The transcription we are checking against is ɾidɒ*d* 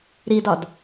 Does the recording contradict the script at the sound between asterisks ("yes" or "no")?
no